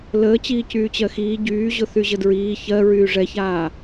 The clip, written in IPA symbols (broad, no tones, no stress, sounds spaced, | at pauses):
l əː t͡ɕ iː c yː t͡ɕ ɜ x iː ɟ yː ʑ ʊ θ y ʑ ə d ɹ iː ç ɜ ɹ yː ʐ ɛ ç aː